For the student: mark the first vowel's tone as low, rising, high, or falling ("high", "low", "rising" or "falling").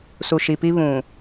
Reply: low